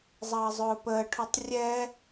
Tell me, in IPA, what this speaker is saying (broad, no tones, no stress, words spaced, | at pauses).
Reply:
zˤʌːzˤʊːpəːʈʰutˤ rʲɛ